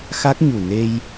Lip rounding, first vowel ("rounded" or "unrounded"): unrounded